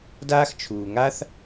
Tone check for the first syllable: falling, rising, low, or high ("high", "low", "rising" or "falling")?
high